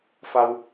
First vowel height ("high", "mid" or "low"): low